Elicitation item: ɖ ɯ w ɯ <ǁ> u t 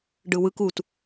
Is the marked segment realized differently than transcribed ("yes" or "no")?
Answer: yes